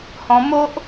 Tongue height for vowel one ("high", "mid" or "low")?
mid